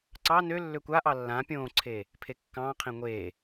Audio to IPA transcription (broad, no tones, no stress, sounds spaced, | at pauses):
ǀ ɑ n ø lː ø kʷ a ʔ ɑ lː ã pʲ õː ǀʰ eː | pʰ e kː ɑ̃ː qʰ ẽ ŋʷ eː